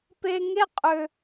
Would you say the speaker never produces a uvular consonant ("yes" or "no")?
no